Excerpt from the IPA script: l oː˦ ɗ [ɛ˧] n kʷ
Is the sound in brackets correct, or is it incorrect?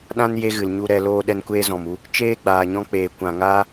correct